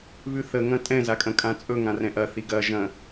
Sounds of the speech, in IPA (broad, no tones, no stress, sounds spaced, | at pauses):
β ʉ θ ə ŋ ɐ̃ tʼ ɛ̃ z a kʼ ɐ̃ kʼ ã t͡sʼ ɵ ŋ ã r ɛ̃ ʔ ɐ θ i ɡ ɐ ʒ ɐ̃